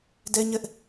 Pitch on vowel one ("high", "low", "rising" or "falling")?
high